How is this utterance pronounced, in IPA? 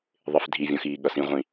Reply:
ðˤ ɪ f dʱ i vʲ ɔ̃ x iː ɠ ʌ s ĩ ʁʷ ĩ

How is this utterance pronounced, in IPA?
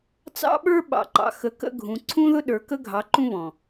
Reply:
t͡s ɑ̰˦ ɓ ə˞˦ ɓ ɑ̰˨ ǃ ɑ̰˨ x ə˨˦ k ə̰˦ ɡʱ ũ˨ ǀʰ ũ˦ ð ʊ˦ ɗ ə˞˨ k ə˦ ɡʱ ɑ˨˦ ǃ ũ˦ β ɔ̃˨

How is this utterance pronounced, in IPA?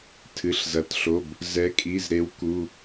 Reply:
tʰ ɨ˩˧˩ ɬ z ɐ˩˧˩ t ɬ o˩˧˩ b | z ɛ˨˦ kʼ i˩˧˩ z ɾ e˨˦ w k u˩˧˩

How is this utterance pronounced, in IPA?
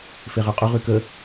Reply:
f e ʁ ø qʼ ʊ ʁ y k ə

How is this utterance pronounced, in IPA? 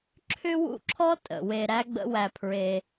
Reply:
ǁʰ ʏ˥ w ṵ˦ ǁʰ ɔ˥ tʼ ə̰˩ w e˨ ɾ æ˦ ɡ͡b ə̰˦ w æ˨ pʰ ɹ e˨

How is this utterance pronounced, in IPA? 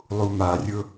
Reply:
lˠ u m a rʲ ʊ

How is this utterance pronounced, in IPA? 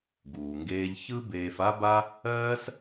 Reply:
ɡ uː˩ ŋ ɡ eː˧ ʎ ç ɯ˥ b eː˧ f a˥ b a˥ | ɜː˥ s

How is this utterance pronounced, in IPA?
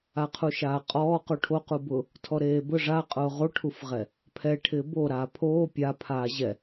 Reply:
a qʰ u ʃ aː qʼ ɔː q u ʈʰ o q u b ʊ | tʰ ɔ ɾ eː b ʊ ʐ a qʼ ʊː ʁ o ʈʰ u f ʁ ɛ | pʰ ɛ ʈʰ ɪː b o ɾ aː pʰ oː pʲ a pʰ aː ʑ ɛ

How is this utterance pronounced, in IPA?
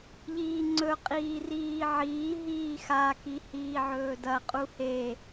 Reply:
ʎ iː ŋ͡ǀ ɵ qʼ iː r iː ʕ iː ɦ iː x a k i h iː ʕ ɵː d ɐ qʼ u h e

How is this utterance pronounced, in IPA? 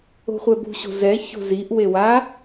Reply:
o̤ χʷ ɛ b ṳ ɕ o̤ z ɛ ç o̤ z i ʔ w e w a

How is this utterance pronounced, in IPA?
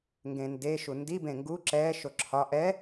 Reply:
ŋ ɡ ẽ n d e ʃ u n d i b ẽ ŋ ɡ u ǁ ɛ ʃ o ǁʰ ɒ ʔ ɛ

